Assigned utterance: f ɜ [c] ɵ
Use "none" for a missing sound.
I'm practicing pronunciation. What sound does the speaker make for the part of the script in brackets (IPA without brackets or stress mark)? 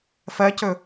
c